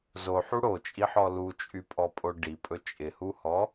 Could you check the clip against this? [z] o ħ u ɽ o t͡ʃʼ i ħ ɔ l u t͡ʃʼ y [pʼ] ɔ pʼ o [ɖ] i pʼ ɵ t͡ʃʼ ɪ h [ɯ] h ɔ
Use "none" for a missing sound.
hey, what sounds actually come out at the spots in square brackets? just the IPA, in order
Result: z, pʼ, ɖ, u

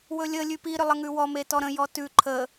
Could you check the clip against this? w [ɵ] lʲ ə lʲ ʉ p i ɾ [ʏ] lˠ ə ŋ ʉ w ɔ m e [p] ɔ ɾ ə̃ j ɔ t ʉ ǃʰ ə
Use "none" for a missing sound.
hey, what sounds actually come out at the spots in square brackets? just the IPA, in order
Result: ɵ, ʏ, t

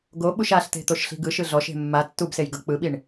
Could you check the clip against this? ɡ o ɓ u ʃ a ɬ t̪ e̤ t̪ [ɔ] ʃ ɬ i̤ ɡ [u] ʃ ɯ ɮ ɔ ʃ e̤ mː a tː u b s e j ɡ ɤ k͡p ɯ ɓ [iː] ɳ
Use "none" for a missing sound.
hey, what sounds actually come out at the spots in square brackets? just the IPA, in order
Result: o, ɯ, i

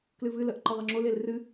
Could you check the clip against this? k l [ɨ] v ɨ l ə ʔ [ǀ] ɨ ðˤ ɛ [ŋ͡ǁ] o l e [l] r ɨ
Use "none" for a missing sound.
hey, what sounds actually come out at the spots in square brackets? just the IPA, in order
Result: ɨ, ǃ, ŋ͡ǁ, l

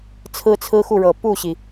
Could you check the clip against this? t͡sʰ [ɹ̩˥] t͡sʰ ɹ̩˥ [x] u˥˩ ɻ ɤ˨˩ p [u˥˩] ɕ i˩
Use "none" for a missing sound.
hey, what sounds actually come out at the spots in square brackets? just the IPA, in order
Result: ɹ̩˥, x, u˥˩

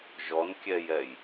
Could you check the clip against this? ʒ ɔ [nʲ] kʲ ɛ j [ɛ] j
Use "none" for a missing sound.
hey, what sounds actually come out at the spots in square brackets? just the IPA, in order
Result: n, ɛ

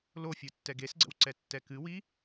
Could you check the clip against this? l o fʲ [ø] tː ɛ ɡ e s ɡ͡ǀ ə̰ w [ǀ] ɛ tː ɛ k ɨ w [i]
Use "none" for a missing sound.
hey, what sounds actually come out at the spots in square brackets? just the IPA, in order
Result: u, ǀ, i

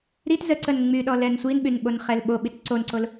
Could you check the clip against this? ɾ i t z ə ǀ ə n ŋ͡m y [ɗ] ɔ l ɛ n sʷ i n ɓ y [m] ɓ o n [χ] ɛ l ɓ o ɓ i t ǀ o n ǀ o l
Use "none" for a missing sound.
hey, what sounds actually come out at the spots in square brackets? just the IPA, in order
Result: ɗ, n, χ

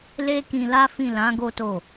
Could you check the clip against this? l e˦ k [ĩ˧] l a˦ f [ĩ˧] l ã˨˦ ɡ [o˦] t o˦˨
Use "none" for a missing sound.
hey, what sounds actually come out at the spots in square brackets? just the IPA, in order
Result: ĩ˧, ĩ˦˨, o˦

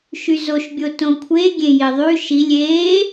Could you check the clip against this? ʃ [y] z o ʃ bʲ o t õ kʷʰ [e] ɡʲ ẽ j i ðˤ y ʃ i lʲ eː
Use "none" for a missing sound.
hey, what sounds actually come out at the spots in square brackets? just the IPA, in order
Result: y, e

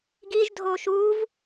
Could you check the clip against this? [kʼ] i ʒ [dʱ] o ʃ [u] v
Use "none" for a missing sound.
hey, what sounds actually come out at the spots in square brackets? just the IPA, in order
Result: ɡ, dʱ, u

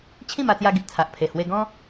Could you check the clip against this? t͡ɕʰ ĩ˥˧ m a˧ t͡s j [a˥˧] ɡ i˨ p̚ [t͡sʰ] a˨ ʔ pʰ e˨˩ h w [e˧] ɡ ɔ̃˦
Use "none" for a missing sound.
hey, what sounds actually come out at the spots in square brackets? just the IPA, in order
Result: a˧, t͡sʰ, e˧

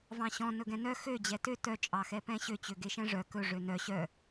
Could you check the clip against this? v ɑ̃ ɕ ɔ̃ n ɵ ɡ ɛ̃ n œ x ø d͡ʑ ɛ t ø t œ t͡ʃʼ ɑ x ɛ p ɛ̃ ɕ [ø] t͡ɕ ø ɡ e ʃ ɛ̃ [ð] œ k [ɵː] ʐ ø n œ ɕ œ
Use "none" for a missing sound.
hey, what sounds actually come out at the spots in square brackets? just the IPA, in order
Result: ø, ʐ, ɵ

